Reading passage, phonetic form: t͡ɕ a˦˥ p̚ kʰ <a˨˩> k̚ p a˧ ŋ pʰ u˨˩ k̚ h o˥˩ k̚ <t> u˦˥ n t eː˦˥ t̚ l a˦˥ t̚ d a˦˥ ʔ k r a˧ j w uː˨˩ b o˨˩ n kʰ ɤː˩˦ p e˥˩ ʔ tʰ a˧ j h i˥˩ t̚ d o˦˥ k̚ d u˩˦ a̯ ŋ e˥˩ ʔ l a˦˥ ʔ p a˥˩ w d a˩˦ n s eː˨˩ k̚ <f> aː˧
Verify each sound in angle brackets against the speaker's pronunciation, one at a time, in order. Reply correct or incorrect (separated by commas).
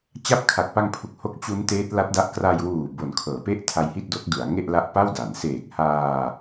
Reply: correct, incorrect, incorrect